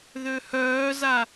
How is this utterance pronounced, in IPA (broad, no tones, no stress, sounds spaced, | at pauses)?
ð ø h œː z a